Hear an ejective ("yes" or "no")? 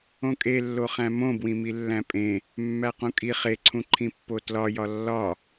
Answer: yes